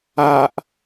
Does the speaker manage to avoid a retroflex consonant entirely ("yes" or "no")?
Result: yes